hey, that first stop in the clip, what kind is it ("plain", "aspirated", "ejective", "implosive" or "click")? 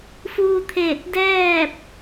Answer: aspirated